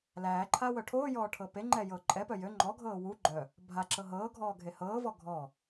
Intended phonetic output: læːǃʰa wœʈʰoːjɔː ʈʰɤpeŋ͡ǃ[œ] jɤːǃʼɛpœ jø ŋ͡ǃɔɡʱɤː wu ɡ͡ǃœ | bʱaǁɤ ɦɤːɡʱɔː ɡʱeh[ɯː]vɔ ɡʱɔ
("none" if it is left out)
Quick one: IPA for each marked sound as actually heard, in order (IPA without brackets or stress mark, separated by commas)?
ɛ, ɤː